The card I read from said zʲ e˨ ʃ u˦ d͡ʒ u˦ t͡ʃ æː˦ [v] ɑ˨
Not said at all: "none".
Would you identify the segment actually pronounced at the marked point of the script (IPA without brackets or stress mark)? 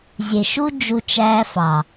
f